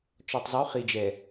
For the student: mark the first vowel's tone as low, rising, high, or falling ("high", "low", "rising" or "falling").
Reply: low